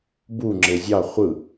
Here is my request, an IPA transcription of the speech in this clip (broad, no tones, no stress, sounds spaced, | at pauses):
b u ŋ͡ǁ e zʲ ɑ χʷ ɯ